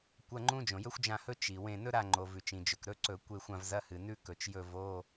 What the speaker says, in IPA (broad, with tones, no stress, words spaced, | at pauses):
kʷɐ˧˥˧ŋ͡ǃũ˥ d͡ʒõ˩jɵ˥xʷd͡ʒã˦˨hɵ˥ t͡ʃi˩ wẽ˦˨ nɵ˥ɾa˦˨ŋ͡ǃo˩ vʉ˩t͡ʃĩ˩d͡ʒɵ˩k ɾɵ˧˥˧ǀɵ˧˩˧ kʷe˦˨xʷã˦˨vzɐ˧˥˧ hɨ˩nʉ˥ kɵ˩t͡ʃjɵ˦˨ vo˧˥˧